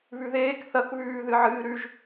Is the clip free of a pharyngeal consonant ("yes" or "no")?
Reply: no